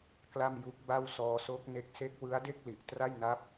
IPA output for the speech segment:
k l a˥˩ m j u˦˥ k̚ b a˥˩ w s ɔː˧ s o˦˥ k̚ n e˦˥ k̚ s e˦˥ k̚ w ɯ˦˥ a̯ d e˥˩ k̚ l i˨˩ ʔ t r a˥˩ j n a˦˥ p̚

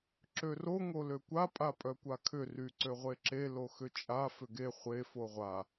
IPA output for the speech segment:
ǁ ø r o ŋ o l ø kʷ a pʼ a pʼ œ kʷ a kʰ ʏ r y ǀ ø ʁʷ e ǁ e l o x ʏ t͡ʃʼ a f ʏ ɡ e χʷ e f o ʁʷ a

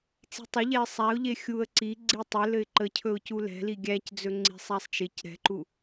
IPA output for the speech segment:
t͡s i̤ tˤ ɵ ʎ ɛ ɪ̯ sˤ æ ʊ̯ ʎ e xʲ u ə̯ ǀ i ɡ͡ǀ i tˤ ɘ l ɘ ɪ̯ ǃ ə cʰ ɵ ʊ̯ c u l ɛ̤ l i ɡʲ æ c d͡z ɵ ŋ͡ǀ i̤ sˤ æ sˤ t͡ʃ ɪ c ɾ ɛ̤ ǃ u

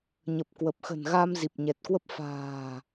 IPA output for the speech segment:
ɲ ə˨˩ p̚ k w ə˨˩ p̚ x ə̤˨˩ n ɣ a˧ m z i˨˩ p̚ ɲ ɛ˨˩ t̚ k w ə˦˥ p̚ f a̤ː˨˩

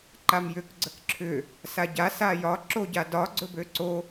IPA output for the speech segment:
ǃ a m j ʏ k ɡ͡ǀ ə k ǁʰ ʏ | s a ɟ a s a j ɒ ǁ o ɟ a d ɒ ɡ͡ǀ ɵ b ø ǀ o

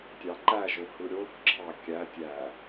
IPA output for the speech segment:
tʲ ɑ ǃ æ ʒ o h ɯ ɾʲ o θ ǁʰ ɑ kʲ æ tʲ æ

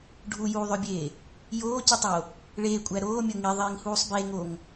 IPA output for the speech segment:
ɖʱ u j uː ðˤ ø bʲ eː | j oː c u tˤ o | ɭ eː kʷʼ æ ɾ oː mʲ o ŋ i ðˤ iː ŋ h uː sˤ b e ŋ o ŋ

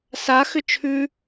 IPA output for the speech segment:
s a x ʏ t͡ʃʰ ʉ

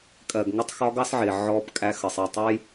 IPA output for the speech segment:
kʼ ɜ˨ ɡ ŋ ə˦ tˤ x ɒ˦ ɡ ɑ˦ s ʕ ɪ˨ ʕ ɔ˦ b kʼ æ˦ x ə˨ sˤ i˨ tˤ ə˦ j

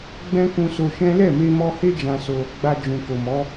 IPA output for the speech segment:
ɡ͡b ɛ̃˦ k ũ˧ s o˧ ʃ ɛ̃˦ l ɛ˦˨ m e˧ m ɔ˧ h e˦ d͡ʒ ã˧ s o˧ | ɡ͡b a˧ d͡ʒ ũ˨ k o˨ m ɔ˨˦

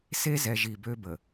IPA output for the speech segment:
s e˦ z ɛ˨ ʒ i˨ b ø˦ b ə˨

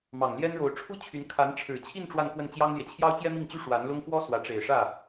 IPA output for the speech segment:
m ɑ˨˩ ŋ l j ɛ˥ n ɻ o˧˥ ʊ̯ ʈ͡ʂʰ u˥ t͡ɕʰ y˧˥ n kʰ a˧˥ n ʈ͡ʂʰ ɻ̩˨˩ t͡ɕʰ i˥˧ n ʈ͡ʂ w a˥˧ n k w ə˥˩ n t͡ɕ j ɑ˥ ŋ l j ɛ˨ t͡ɕʰ j ɑ˥ ʊ̯ t͡ɕ j ɛ˥ m i˥˩ ŋ t͡ɕ y˥ ʂ w a˧˥ n l ʊ˥ ŋ f w ɔ˥ s w ä˧˥ ʈ͡ʂ e˨˩ ɪ̯ ʂ ä˥˩

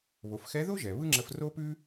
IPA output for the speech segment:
β o˩˧ f x ɛ˧˥ ð o˥ ʒ ɛ˩ β ɯ˥ ŋ͡ǁ ə˧ f r o˥ p ʉ˥

